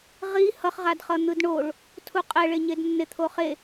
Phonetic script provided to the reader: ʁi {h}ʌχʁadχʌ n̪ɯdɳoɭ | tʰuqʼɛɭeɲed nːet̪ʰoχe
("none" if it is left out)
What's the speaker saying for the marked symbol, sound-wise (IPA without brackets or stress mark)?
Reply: h